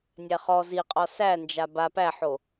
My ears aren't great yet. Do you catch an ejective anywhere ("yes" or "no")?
yes